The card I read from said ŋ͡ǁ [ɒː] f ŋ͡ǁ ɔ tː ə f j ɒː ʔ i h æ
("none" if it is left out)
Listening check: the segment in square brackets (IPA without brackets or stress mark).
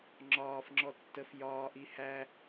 ɒː